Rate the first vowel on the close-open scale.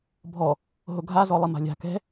mid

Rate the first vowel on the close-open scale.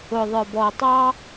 close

